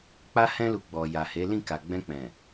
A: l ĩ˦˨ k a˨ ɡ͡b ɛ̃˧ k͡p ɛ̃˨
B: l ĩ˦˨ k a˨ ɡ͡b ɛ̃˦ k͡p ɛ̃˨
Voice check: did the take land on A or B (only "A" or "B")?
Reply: A